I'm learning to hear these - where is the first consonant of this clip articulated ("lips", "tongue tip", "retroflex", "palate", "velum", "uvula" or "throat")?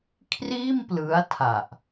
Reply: velum